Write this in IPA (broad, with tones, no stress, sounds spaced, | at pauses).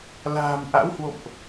l a̤ː˨˩ m ʔ a̰˧˥ w h w o̰˧˨ m ʔ